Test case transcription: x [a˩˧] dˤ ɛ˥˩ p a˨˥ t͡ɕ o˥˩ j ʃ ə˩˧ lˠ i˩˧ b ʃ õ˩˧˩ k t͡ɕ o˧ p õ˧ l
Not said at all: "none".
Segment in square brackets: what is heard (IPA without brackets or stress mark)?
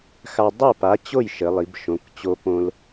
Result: a˧